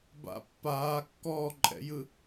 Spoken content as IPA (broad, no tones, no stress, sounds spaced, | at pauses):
b a̰ pː aː kː ɔː ǃʼ ɛ̰ j ɯ